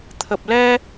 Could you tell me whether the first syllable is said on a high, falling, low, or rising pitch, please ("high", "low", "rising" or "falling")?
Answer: low